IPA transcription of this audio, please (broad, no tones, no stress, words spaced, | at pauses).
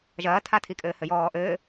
ʒɐːtʰatʰikʼɘː hɘjɔːʔɘː